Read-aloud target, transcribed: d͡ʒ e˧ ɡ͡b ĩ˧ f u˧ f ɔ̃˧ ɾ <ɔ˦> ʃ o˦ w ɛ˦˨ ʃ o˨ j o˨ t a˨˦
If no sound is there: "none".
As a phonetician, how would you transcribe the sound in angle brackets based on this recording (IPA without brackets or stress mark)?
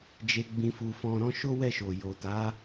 ɔ̃˦